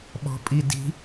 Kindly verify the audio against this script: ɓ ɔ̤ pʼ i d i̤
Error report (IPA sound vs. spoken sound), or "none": none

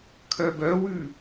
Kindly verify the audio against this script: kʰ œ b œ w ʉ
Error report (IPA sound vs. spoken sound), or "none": none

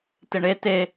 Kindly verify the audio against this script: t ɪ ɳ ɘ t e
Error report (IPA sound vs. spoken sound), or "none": ɘ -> e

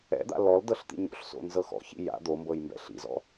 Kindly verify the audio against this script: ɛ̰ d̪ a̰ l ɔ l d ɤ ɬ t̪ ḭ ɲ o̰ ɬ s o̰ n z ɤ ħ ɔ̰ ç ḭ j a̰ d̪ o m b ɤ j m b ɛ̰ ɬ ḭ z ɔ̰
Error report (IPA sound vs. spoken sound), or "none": ħ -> x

